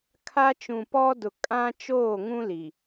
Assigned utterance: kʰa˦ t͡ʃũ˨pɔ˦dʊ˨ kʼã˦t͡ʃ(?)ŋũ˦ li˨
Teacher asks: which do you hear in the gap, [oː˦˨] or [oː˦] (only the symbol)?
oː˦˨